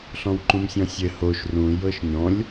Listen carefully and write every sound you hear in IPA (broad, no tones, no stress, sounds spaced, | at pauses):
ɬ ɔ̃ w ǃ ũ m sʲ ɔ̃ sʲ ɘ h o ʃ r ũ j ɤ ʃ ɲ ɔ̃ lʲ